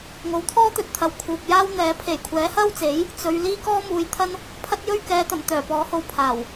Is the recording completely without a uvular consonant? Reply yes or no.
yes